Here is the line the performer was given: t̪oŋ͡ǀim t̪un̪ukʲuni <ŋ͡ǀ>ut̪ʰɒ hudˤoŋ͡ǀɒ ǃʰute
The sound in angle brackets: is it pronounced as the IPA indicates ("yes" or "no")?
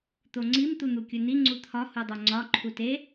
yes